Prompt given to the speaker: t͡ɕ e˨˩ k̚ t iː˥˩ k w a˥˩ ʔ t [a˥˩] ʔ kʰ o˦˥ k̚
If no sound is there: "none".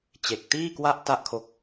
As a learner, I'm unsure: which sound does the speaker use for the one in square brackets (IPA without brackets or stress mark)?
a˥˩